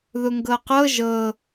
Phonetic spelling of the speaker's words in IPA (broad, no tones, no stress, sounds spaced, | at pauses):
ð ʊ ŋ ɡ ɤ q ɤ ʒ ɤ